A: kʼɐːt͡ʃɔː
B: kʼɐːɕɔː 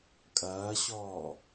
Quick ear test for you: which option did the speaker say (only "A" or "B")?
B